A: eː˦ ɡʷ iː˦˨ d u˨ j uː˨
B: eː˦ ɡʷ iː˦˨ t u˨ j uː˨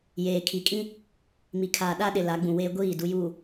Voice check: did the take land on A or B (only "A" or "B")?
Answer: A